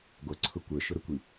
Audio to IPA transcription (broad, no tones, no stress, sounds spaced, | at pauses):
ɡʷ ʌ ǀʰ ʊ kʷ ə˞ ʃ ʊ ɾ ʊ kʷ i